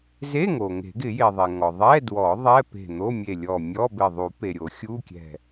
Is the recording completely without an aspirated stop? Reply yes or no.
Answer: yes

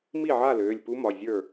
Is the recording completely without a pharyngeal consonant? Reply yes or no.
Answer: no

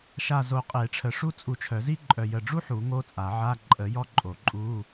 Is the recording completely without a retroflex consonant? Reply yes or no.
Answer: no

